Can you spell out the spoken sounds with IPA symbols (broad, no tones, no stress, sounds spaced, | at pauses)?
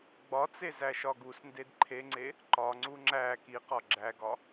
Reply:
ɡ͡b ɒ t͡s e z æ ʃ ɒ ɡ u s n d e d ǃʰ e ŋ͡ǀ e | ǃ ɒ ŋ͡ǀ u ŋ͡ǁ æ k i q ɒ ɡ͡ǁ æ ɡ ɒ